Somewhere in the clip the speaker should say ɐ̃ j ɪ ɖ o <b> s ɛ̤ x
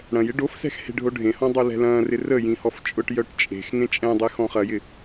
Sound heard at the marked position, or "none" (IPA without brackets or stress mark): f